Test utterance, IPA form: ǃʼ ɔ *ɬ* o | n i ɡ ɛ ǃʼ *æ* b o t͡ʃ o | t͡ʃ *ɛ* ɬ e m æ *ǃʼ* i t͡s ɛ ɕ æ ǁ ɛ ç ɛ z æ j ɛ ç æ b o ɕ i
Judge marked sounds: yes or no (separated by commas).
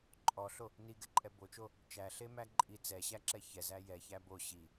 yes, no, no, yes